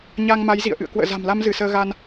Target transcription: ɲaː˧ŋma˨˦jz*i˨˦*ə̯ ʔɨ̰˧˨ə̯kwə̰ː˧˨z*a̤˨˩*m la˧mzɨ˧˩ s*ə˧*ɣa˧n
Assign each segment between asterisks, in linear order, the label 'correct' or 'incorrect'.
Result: incorrect, correct, incorrect

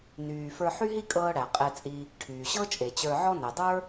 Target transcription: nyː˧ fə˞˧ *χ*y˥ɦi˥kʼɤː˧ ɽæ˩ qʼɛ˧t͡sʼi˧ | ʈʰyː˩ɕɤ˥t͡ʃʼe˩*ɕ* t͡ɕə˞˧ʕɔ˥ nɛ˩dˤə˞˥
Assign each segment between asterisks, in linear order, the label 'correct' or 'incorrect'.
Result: incorrect, incorrect

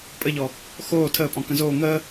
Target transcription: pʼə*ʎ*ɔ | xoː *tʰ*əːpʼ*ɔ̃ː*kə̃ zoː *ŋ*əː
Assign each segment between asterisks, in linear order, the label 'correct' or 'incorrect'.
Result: correct, correct, incorrect, correct

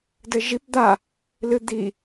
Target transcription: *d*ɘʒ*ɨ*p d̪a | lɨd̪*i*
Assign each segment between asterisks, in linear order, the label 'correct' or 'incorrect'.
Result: correct, incorrect, correct

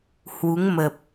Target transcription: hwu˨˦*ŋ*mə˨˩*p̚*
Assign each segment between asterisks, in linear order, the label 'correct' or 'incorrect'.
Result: correct, correct

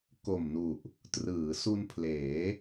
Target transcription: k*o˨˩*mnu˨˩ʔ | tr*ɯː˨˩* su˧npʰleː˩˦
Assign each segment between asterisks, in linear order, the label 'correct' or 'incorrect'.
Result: correct, incorrect

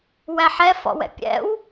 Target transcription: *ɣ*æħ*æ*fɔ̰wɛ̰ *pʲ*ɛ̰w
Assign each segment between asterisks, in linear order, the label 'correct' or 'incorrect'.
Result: incorrect, incorrect, correct

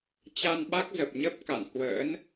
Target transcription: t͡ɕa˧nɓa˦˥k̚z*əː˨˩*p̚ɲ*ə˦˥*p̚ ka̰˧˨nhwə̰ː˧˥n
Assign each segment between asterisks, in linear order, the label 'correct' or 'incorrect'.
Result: incorrect, correct

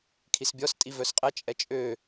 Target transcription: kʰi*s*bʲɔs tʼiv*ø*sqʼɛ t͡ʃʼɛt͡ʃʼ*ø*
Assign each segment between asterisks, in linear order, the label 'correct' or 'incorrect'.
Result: correct, incorrect, correct

